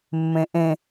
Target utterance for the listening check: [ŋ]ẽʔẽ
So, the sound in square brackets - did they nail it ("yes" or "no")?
no